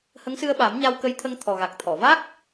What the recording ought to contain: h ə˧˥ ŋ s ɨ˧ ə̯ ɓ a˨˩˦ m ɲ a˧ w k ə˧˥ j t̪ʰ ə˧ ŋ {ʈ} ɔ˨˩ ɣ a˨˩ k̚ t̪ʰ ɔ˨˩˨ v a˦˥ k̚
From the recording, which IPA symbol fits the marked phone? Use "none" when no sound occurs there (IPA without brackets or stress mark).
t̪ʰ